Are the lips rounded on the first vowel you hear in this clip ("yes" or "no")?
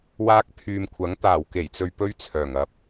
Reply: no